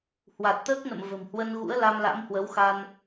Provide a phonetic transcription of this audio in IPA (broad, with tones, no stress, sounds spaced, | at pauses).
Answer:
h w a˨˩ t̚ t̪ əː˦˥ k̚ n ə̰˧˨ m v ə̤˨˩ m h w ə˧ n ɣ ṵ˧˥ ə̯ l a˧ m l a̰˧˥ m h w ə˨˦ w x a˧ n